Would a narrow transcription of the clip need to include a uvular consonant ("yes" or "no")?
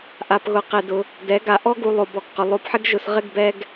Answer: yes